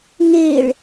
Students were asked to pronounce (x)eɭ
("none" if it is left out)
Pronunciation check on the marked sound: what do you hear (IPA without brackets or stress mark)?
ŋ